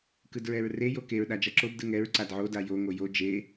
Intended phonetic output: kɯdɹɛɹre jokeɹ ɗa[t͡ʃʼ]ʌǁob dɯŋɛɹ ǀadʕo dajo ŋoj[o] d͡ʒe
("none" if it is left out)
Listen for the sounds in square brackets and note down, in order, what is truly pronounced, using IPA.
d͡ʒ, o

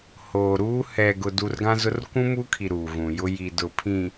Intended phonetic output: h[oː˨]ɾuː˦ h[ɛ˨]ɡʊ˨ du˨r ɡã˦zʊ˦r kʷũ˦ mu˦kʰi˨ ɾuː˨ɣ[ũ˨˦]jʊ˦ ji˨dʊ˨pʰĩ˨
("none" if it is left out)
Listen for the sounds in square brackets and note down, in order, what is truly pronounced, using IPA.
oː˨, ɛ˨, ũ˨

